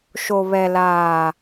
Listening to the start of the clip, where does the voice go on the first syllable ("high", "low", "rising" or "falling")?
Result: low